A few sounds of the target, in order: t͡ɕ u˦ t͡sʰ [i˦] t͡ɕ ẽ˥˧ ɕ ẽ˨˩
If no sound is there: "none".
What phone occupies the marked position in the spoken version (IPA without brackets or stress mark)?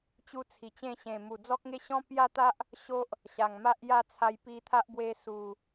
i˨˩